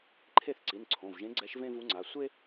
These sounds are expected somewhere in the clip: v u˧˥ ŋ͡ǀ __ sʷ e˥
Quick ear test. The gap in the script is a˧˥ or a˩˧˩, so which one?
a˩˧˩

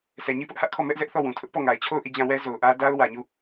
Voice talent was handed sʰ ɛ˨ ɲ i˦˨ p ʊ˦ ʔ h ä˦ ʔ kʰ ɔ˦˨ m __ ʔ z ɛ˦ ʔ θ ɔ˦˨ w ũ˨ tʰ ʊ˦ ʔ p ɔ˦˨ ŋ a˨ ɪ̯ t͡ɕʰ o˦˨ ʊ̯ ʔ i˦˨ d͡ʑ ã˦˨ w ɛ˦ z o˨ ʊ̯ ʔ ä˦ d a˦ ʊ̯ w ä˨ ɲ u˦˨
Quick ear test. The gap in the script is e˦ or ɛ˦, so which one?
ɛ˦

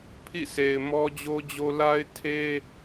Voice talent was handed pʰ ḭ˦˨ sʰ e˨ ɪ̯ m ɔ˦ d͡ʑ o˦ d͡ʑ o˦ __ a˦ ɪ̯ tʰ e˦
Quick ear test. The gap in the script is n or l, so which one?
l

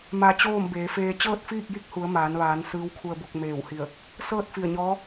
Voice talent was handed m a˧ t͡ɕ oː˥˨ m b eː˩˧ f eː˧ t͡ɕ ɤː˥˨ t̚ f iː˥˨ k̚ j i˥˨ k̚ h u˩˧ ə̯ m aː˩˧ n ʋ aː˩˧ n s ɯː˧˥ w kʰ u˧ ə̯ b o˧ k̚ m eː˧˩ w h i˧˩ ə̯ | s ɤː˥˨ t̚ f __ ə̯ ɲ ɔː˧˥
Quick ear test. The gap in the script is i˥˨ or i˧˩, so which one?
i˧˩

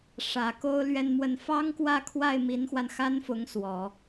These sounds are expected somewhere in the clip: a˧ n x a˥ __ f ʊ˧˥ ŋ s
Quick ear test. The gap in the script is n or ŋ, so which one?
n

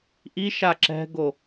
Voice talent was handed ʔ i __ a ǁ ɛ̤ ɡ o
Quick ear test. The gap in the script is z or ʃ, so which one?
ʃ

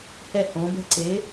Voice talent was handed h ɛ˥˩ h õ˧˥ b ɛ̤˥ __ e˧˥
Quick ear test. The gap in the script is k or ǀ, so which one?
ǀ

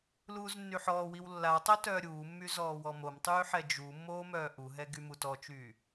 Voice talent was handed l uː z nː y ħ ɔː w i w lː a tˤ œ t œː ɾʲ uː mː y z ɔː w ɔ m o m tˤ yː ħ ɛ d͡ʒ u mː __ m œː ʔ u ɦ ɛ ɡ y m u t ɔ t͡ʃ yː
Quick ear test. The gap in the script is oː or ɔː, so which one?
oː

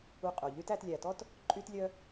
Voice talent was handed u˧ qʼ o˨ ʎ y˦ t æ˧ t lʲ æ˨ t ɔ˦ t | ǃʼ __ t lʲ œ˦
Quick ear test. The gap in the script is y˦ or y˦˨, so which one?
y˦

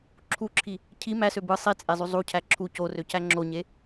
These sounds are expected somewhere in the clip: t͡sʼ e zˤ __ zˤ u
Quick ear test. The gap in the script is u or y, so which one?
y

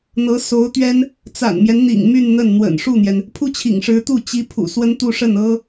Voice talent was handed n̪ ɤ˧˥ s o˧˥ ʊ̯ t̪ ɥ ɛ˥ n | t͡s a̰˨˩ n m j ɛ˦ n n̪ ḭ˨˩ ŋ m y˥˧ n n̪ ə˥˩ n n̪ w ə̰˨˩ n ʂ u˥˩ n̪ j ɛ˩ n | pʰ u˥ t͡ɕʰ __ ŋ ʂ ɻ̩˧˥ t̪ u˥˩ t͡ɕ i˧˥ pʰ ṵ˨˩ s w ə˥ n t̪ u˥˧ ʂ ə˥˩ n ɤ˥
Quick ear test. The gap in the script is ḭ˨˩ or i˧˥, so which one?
ḭ˨˩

